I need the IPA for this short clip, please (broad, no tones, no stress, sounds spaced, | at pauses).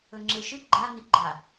ɵ ŋ͡ǁ e ʃ ɨ ɡ͡ǃ a n i ɡ͡ǃ a